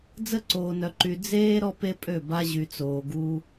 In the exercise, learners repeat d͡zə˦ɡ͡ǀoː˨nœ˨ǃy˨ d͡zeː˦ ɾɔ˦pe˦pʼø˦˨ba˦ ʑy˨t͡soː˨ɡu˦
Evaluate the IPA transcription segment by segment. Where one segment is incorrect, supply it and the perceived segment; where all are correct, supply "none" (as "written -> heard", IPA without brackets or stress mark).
ɡ͡ǀ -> ǀ